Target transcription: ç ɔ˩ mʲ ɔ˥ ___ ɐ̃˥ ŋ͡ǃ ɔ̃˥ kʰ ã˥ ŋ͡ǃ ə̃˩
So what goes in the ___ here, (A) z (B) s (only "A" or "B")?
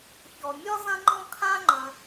A